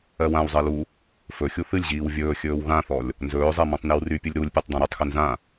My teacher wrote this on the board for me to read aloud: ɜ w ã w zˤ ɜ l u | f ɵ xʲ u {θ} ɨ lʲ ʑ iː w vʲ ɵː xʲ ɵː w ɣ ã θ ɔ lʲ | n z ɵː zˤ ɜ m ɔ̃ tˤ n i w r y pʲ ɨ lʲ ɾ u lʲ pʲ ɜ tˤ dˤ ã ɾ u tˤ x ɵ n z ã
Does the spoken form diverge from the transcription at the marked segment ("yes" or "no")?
no